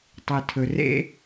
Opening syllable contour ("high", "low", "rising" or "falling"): low